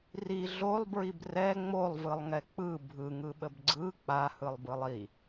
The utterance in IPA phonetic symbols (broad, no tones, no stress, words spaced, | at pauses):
ri ɮolˠbɹib rɛ ŋ͡molˠvɯlˠŋɛ k͡pɯ bʱɯŋɯɓəb ɡ͡ǀɯ k͡pahɯlˠbɯlˠ i